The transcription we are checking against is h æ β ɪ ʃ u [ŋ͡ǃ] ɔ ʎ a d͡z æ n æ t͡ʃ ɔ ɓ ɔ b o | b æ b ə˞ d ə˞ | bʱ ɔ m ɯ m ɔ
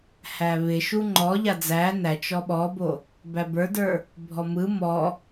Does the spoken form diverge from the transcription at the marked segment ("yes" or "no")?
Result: no